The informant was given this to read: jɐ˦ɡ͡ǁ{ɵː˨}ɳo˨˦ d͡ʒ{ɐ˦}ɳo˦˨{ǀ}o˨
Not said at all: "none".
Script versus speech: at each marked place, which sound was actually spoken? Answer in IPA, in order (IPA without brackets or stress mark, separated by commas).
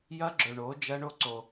ɵ˨, ɐ˦, ǀ